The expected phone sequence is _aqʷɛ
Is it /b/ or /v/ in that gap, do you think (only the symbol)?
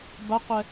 b